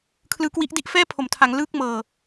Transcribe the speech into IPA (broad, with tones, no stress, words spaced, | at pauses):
kʰlɯː˦˥kwi˦˥ʔdi˥˩ʔ fɛː˥˩pʰo˩˦mtʰa˩˦ŋ lɯː˥˩k̚mɤː˨˩